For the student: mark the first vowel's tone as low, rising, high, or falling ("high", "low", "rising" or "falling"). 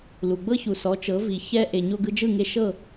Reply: low